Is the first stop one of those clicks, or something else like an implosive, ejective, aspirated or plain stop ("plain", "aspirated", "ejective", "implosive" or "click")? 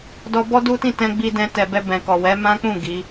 plain